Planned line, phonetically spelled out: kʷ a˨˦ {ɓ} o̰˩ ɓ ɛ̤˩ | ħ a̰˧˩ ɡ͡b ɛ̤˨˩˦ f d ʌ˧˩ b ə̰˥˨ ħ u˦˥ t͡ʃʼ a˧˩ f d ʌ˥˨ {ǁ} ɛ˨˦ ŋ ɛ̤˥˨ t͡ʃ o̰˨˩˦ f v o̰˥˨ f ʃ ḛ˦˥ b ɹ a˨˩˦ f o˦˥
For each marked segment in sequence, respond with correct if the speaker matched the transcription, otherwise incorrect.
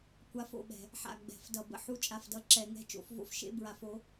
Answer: incorrect, correct

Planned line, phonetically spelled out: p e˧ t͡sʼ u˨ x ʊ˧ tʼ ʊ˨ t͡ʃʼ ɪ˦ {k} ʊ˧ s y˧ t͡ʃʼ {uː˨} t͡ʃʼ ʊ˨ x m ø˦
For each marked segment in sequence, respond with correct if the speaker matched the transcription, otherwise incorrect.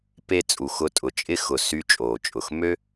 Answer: incorrect, incorrect

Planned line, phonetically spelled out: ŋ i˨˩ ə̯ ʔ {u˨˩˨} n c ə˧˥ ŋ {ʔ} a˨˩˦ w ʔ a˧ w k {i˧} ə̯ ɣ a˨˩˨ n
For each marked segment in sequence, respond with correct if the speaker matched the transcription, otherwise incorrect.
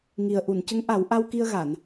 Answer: correct, correct, correct

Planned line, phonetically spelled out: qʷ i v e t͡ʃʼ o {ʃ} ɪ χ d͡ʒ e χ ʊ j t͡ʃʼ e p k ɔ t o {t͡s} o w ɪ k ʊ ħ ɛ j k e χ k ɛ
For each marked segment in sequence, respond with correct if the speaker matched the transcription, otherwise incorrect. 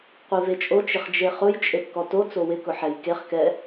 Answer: incorrect, correct

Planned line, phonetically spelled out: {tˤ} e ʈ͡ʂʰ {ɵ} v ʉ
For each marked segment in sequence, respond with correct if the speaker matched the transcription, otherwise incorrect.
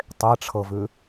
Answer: correct, incorrect

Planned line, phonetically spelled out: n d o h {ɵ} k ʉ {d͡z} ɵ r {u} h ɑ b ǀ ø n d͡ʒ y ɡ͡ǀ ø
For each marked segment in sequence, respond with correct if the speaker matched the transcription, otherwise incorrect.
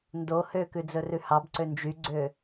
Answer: incorrect, correct, incorrect

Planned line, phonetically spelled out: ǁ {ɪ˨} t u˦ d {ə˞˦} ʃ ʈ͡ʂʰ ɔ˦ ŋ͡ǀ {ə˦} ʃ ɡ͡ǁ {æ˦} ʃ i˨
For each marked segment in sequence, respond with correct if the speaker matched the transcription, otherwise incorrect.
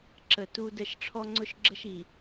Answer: incorrect, incorrect, incorrect, incorrect

